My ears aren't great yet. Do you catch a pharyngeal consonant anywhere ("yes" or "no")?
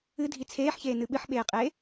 yes